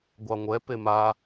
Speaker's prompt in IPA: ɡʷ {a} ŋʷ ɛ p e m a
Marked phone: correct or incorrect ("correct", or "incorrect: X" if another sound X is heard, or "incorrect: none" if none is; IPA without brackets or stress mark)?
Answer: incorrect: ɑ